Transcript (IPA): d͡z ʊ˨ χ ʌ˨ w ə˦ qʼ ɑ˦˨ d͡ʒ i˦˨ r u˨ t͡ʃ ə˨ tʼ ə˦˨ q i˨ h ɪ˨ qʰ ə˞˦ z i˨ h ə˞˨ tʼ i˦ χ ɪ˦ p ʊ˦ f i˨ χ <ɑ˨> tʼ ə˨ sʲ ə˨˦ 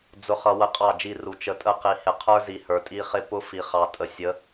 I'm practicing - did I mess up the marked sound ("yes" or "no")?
no